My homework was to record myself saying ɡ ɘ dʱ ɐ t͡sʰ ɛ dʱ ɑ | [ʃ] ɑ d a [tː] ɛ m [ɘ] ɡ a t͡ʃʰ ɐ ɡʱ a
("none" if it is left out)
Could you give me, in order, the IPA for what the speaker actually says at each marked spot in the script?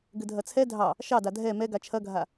ʃ, dʱ, ɛ

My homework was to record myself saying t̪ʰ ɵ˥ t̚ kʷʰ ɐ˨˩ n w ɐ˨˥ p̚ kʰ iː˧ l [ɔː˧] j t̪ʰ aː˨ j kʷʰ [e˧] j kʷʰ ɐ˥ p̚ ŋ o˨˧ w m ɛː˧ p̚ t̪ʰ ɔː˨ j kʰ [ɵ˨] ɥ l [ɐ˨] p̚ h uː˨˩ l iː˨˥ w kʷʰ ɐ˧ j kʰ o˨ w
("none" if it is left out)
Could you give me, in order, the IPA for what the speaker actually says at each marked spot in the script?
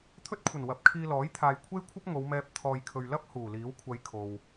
ɔː˨˥, e˥, ɵ˨, ɐ˥

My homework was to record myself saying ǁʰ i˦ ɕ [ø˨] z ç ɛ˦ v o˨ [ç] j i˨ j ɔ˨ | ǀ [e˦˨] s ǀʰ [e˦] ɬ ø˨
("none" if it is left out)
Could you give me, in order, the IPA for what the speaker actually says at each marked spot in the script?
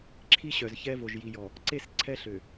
œ˨, ʒ, e˦˨, ɛ˦

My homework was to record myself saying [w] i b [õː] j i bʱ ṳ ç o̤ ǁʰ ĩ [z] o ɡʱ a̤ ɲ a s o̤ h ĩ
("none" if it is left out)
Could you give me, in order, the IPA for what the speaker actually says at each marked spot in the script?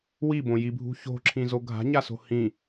w, õ, z

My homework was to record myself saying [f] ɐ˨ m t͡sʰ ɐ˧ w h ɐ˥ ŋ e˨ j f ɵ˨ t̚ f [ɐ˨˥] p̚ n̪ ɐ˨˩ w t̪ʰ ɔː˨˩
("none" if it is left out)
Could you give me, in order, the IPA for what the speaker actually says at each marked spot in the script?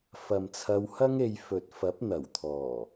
f, ɐ˨˥

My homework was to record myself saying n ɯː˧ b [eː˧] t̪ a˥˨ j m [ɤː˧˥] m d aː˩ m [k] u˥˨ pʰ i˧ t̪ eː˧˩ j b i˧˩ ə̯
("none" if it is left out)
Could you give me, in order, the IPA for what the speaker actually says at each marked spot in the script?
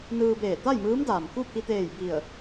eː˧˩, ɯː˧˥, k

